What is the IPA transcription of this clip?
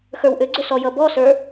x ə˞ w ʔ ʏ ɡ͡ǀ ʏ s ɔ j ʌ b ɔ s ə˞

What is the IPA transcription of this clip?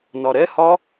n ɒ ɾ ɛ h ɒ

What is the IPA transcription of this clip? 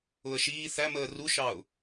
ʊ ə̯ ʃ iː θ æ m əː r u ʃ ɑ ʊ̯

